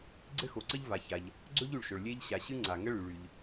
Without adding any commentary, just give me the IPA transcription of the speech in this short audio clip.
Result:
ɡ͡ǀ ɘ˥ x o˩ ǀ ə˥ ʎ v a˩ ç a˩ ʎ | ɡ͡ǀ ɵ˥ ʎ y˩ ɭ ʃ ɵ˩ ɭ lʲ e˥ ʎ ɕ a˩ ɕ ɨ˥ ŋ͡ǀ a˩ ŋ ə˥ ɭ y˩ ɭ y˩ ʎ

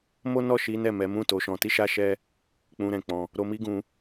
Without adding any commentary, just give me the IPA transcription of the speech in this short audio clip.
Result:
m o˦ n ɔ˦˨ ʃ i˨˦ n ɛ˦˨ m ɛ˨˦ m ũ˦˨ t o˨˦ ʃ ɔ̃˧ t i˦ ʃ a˦ ʃ ɛ˦ | k͡p ũ˧ ɾ ɛ̃˨ k͡p ɔ̃˧ | ɾ o˧ m i˦ ɡ ũ˧

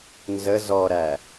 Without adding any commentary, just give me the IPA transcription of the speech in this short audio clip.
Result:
n z ə z ɔ ɾ æ

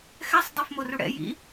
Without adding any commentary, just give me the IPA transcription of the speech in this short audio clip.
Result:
x ɛ sˤ dˤ e f m o r u ɽ ɛ̰ j ḭ

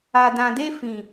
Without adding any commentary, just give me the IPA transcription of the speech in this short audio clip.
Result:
a˨ d ã˨ d e˧ f ĩ˨

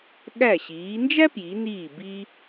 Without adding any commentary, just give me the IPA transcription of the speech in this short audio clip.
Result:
ɠ æ˧˩ ɕ iː˩˧ n d͡ʒ æ˥ p j i˩˧ n iː˧˩ b i˧

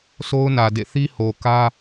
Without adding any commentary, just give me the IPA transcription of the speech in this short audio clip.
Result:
sʰ o˦ ʊ̯ n ä˨ d ḛ˦˨ θ i˦ h o˨ k ä˦

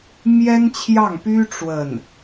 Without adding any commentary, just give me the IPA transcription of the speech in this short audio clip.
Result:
m j ɛ˥ n t͡ɕʰ j ɑ˥˩ ŋ p y˥ ʈ͡ʂ w ə˥˩ n

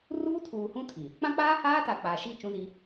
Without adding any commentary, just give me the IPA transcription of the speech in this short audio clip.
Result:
r uː˦ tʰ uː˨ h ũ˦ tʰ i˨ | k͡p ã˦ k͡p aː˦ h aː˦ t a˨ k͡p aː˨ ʃ i˦˨ t͡ʃ ũ˦ z i˦

